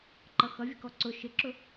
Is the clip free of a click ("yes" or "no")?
no